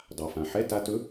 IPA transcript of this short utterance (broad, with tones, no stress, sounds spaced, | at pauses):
dˤ a˩ f ã˩ ħ ɛ˧˥˧ t a˧ t ɵ˧˥